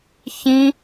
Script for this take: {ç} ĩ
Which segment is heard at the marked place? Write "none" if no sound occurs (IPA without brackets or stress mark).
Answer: ç